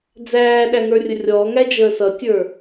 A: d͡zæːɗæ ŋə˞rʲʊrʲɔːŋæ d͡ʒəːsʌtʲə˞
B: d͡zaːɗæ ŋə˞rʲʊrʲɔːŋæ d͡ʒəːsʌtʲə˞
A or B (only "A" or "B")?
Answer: A